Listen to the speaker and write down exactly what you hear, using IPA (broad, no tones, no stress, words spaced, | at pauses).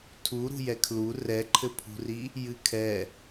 tʰu ɾṳjɛkʰlu rɛǃʰɘpʰṳri | jɨkʰɛ